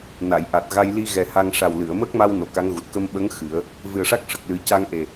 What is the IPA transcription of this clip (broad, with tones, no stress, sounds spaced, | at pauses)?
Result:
n a˨˩˨ j ʔ a˨˩ t̚ ɣ a˧ j l i˧ ɣ ɛ˨˩ h a˧ ŋ ʂ a˨˩ w l ɨ˨˩˨ ə̯ m əː˦˥ k̚ m a˧ w n o˨˩ k a˧˥ ŋ ɣ u˨˩ t̚ k ə˧ m ɓ ə˧˥ ŋ x ɨ˨˩˦ ə̯ | v ɨ˨˩ ə̯ ʂ a˦˥ k̚ ʂ ə˨˩ k̚ l ɨ˨˩ c a˧ ŋ ʔ e˨˩